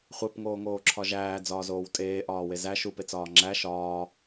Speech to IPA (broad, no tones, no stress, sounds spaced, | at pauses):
χʷ e p ŋ oː ŋ oː ǁʰ ɒ ʒ æː d͡z ɒː z oː w tʼ eː ʔ ɒː w e z æ ʃ u p e t͡s ɒː ŋ͡ǁ æ ʃ ɒː